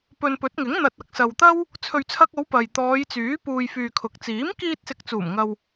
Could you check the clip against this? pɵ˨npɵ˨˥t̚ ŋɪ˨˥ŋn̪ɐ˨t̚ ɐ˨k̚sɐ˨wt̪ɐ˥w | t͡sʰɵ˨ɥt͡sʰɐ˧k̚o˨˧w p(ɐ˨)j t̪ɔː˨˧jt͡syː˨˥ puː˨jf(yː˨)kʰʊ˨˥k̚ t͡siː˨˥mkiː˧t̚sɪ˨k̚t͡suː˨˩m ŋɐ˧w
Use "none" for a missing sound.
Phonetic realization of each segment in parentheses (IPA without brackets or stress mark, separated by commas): ɐ˨, yː˨